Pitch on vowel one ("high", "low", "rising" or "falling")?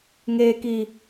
high